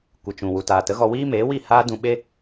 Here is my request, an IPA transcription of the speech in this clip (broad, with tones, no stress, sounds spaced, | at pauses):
kʷ ɨ˨ t͡ʃ ũ˨ w u˨ t aː˨ t ə˨˦ ɣ ɔ˧ w iː˦ m eː˨˦ w i˦˨ h aː˦ d ũ˧ ɓ e˦